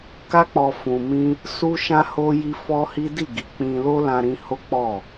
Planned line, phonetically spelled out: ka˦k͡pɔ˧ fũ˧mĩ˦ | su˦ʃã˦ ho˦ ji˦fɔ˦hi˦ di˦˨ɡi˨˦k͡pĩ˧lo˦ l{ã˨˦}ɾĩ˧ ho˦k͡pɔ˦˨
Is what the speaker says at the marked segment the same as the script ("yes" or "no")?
no